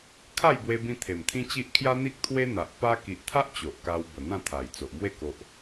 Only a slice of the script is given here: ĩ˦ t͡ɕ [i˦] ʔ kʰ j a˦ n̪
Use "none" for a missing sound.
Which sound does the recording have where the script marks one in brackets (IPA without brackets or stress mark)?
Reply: i˦